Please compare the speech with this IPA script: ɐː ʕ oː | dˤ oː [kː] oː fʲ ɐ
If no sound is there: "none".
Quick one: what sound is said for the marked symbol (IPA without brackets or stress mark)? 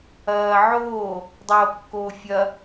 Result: kː